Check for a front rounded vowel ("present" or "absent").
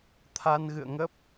absent